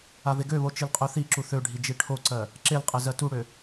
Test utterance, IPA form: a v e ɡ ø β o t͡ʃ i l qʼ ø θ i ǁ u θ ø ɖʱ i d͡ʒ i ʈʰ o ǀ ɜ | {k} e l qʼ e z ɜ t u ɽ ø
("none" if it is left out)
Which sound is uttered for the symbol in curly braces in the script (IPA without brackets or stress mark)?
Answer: ǁ